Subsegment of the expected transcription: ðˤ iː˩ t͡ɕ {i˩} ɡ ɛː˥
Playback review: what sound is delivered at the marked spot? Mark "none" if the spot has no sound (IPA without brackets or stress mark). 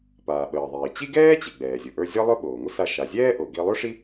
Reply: i˥